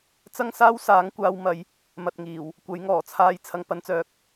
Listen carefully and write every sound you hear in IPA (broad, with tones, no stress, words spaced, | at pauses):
t͡sɐ˥ŋsaː˥wsaː˨˥ŋkʷaː˧w mɐ˨˧j | mɐ˨t̚ŋiː˨˩w | kʷɐ˨˥jŋɔː˨˩t͡sʰaː˧j t͡sʰɐ˨ŋ pɐ˧nt͡sœː˨˥k̚